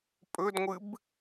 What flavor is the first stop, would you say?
ejective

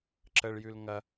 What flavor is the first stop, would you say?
click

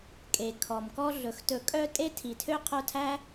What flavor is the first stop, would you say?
ejective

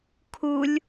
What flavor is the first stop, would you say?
aspirated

